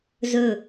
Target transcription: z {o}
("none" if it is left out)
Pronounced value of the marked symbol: ɵ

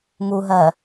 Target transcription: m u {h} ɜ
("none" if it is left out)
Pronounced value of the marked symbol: ɦ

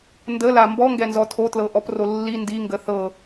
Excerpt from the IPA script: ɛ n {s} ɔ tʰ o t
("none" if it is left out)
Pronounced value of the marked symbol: z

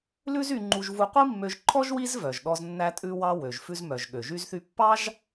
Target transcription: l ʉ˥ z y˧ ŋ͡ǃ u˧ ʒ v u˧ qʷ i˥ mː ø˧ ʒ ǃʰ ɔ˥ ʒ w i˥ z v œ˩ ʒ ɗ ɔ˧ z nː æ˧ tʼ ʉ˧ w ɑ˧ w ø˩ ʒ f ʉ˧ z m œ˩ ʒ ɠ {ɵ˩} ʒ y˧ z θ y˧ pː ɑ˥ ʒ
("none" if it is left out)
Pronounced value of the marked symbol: ø˩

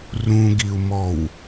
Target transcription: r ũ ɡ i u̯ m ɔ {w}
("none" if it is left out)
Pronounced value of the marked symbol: w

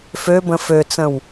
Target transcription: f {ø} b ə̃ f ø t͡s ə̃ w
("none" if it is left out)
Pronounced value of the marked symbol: ø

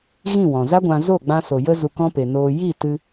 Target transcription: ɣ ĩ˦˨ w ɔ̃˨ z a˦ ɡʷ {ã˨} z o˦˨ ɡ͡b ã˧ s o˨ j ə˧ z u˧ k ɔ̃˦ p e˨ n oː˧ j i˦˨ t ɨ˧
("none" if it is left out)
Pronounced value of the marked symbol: ã˧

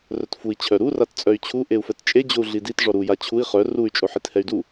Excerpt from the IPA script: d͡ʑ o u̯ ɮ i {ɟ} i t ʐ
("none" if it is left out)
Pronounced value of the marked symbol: d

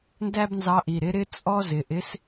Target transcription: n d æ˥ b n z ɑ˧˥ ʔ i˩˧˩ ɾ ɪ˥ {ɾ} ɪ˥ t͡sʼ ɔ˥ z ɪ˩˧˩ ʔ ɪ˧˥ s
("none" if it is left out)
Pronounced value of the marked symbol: ɾ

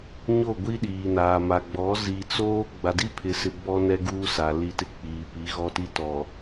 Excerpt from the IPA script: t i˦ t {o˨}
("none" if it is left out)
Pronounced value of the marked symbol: ɔ˨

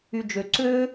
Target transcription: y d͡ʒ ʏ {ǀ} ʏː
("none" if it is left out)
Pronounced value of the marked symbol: ǀ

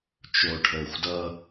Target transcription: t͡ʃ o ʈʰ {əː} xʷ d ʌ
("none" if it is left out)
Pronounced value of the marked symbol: əː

